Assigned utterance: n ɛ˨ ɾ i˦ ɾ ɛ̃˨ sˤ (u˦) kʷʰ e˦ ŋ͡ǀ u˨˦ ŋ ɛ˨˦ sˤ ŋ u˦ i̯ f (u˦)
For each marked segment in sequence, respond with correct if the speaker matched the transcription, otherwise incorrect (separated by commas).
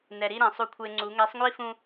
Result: correct, incorrect